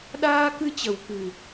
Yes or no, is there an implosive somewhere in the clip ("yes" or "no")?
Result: yes